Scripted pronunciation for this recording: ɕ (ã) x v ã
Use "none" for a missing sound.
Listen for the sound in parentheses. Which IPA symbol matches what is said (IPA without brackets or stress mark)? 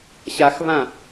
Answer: a